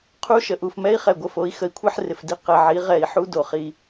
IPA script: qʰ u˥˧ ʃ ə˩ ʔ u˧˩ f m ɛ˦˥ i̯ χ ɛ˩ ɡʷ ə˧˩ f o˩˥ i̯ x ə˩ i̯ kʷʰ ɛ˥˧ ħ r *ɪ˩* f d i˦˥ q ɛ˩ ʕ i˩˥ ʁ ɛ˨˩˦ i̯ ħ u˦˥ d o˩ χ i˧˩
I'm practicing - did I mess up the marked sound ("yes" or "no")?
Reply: no